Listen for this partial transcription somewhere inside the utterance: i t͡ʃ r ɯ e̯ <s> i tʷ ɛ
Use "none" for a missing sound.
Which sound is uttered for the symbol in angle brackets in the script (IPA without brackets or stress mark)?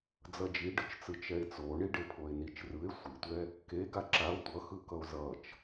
sʷ